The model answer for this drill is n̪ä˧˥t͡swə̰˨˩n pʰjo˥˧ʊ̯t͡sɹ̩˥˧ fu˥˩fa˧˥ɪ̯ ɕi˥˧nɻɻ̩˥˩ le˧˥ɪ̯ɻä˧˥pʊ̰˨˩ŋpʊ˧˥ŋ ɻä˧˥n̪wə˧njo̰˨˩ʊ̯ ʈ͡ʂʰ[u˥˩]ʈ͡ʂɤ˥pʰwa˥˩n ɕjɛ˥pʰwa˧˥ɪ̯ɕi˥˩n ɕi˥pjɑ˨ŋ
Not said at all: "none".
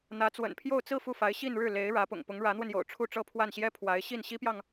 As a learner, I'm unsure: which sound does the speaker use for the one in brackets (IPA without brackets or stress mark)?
u˥˩